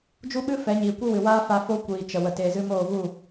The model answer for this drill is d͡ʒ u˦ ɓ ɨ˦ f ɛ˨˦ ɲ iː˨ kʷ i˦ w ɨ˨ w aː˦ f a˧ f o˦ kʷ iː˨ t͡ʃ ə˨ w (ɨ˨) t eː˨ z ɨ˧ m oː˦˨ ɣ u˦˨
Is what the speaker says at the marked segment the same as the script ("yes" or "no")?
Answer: no